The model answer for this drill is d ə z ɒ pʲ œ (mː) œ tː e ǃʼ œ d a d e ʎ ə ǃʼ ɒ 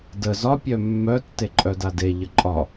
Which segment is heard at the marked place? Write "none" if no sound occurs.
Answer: mː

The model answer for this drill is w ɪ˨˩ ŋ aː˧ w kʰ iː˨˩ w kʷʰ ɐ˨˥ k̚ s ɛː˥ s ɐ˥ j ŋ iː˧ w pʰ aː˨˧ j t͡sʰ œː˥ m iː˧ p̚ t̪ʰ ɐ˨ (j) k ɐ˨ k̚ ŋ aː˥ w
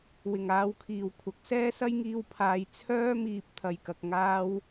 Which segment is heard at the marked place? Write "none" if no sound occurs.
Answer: j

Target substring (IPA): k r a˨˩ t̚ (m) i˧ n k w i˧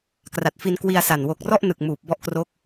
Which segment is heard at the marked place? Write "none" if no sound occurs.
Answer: f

